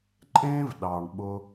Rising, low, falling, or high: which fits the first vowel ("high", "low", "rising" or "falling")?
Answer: high